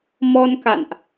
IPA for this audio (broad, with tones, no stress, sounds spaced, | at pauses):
m ɔ˧ n k a̰˧˨ n ʔ